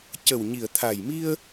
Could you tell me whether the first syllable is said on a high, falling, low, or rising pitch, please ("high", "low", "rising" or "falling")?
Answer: low